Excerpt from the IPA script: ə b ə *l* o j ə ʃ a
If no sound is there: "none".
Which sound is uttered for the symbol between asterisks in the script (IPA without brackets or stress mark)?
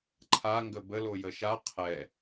l